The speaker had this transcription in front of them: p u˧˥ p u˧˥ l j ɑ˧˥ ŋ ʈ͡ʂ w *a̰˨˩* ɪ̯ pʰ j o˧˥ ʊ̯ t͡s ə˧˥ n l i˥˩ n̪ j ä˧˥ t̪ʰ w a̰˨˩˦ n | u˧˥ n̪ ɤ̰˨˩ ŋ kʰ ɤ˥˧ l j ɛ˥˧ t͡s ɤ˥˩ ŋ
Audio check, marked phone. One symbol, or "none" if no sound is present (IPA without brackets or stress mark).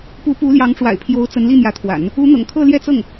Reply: a̰˨˩